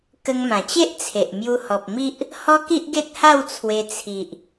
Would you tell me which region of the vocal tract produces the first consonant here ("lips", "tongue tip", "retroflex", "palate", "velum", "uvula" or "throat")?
velum